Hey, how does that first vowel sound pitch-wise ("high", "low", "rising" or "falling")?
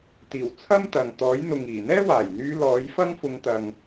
low